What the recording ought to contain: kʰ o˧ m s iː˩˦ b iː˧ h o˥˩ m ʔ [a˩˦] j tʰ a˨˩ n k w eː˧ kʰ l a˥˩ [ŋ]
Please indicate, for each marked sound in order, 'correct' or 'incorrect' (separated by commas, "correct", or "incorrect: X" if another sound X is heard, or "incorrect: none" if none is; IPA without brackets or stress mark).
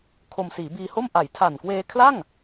correct, correct